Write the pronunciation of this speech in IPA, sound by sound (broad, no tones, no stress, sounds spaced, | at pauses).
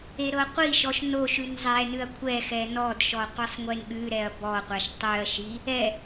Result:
e ɾ ɤ qʷ i ʃ ɔ ʃ n o ʃ ʉ n zˤ ɛ n ʉ ɐ̯ kʷʰ ɛ x ɛ n ɔ d ʃ ɔ qʷ ɛ sˤ ŋʷ e n ɠ ʉ ɾ ɛ ɐ̯ b ɔ qʷ a ʃ tˤ ʉ ɐ̯ ʃ i | ɛ